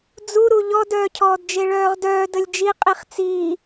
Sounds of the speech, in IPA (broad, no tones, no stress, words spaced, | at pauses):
d͡zuɾu ʎɔdœːcʰɔːdd͡ʒe ɭœːʁdœː dəlʲd͡ʒi qʼiχt͡siː